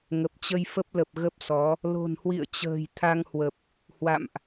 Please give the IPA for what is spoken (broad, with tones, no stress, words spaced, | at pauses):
ŋə˨˩p̚t͡ɕə˧jfə˦˥p̚lə˨˩p̚ ɣə˦˥p̚sɔ˨˦ | lo̤˨˩nhwḭ˧˨ə̯t͡ɕə̤ː˨˩j t̪ʰa˧ŋhwə˨˩p̚ | hwa̰˧˨mʔ